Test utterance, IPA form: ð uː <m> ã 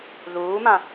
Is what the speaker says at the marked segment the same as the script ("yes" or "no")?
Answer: yes